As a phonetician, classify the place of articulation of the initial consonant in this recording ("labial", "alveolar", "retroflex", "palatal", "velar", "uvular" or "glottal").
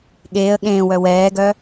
velar